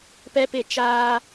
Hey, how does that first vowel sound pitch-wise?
high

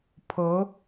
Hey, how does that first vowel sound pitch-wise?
rising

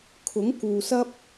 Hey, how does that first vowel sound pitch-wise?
rising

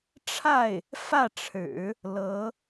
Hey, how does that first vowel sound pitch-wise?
falling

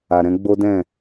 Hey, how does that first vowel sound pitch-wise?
low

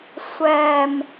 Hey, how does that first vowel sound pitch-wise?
low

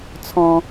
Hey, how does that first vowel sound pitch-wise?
low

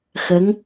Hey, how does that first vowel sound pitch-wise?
rising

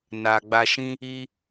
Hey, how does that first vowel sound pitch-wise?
low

